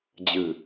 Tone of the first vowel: low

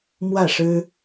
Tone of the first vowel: falling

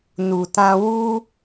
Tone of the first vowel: low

